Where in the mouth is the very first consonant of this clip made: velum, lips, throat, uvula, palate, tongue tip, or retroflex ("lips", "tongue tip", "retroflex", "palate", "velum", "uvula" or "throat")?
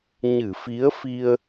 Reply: palate